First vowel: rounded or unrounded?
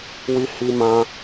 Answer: unrounded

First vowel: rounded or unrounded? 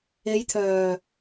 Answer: unrounded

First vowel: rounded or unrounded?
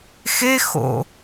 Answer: unrounded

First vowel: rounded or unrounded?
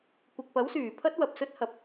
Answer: unrounded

